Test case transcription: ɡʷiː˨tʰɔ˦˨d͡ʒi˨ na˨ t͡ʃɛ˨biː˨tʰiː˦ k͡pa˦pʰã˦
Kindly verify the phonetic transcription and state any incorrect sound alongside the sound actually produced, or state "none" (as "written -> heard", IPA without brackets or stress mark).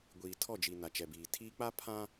none